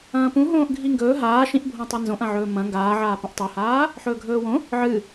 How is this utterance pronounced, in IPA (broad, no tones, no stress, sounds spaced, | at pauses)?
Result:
ɐ̃ː p ũ ɦ õː ʔ ɡʱ i ŋ ɡ ɵː ɦ aː ʃ ĩ ʔ bʱ õ tˤ a n z õ ʔ ɐ̃ ʕ ɵː m ɐ̃ ŋ ɡ aː ʕ aː p ɐ̃ ʔ tˤ ʉ h aː | ħ ɵː ɡʱ ɵː w õ | ʕ ɨ